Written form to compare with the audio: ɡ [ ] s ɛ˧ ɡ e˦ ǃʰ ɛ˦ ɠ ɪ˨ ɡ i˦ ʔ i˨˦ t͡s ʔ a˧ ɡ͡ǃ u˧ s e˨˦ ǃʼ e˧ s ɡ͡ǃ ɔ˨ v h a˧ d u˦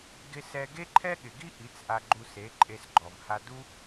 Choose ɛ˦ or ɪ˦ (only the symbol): ɪ˦